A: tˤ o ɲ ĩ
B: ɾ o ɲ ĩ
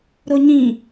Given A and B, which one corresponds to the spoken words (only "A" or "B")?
B